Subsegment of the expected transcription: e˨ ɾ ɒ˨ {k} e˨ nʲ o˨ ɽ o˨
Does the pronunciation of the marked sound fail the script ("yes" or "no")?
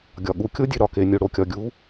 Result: no